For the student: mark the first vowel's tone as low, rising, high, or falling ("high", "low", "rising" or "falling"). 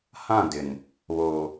falling